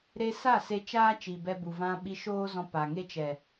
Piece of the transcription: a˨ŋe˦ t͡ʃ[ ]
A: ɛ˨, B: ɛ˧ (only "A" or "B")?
A